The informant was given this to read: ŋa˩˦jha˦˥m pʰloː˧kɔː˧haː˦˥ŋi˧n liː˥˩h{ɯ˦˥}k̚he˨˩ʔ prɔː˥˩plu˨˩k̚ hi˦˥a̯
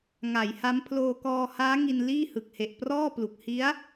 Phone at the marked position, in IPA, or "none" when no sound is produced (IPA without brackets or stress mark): ɯ˨˩